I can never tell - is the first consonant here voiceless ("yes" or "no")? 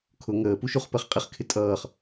yes